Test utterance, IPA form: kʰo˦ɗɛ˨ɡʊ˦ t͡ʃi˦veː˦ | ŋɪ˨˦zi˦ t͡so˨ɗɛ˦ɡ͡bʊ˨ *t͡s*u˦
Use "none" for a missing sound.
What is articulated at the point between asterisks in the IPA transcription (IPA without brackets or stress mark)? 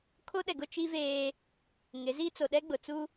t͡s